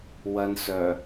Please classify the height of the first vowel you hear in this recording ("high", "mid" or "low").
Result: low